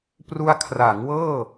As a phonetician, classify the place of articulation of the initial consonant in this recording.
labial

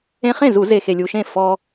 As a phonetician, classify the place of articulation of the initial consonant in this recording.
uvular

